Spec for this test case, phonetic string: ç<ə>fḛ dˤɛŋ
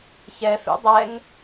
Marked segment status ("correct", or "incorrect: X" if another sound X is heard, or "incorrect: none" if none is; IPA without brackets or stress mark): incorrect: ɛ